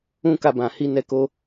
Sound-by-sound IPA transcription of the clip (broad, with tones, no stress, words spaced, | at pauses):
ũ˦ka˧bã˨hi˧ nɛ˧ko˧